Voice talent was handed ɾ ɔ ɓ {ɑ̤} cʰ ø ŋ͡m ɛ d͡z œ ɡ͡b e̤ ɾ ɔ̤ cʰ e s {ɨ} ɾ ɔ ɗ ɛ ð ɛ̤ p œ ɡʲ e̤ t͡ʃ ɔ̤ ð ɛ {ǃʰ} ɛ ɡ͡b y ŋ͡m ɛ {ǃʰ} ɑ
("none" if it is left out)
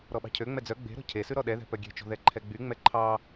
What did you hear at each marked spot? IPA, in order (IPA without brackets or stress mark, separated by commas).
ɑ̤, ʉ, ǃʰ, ǃʰ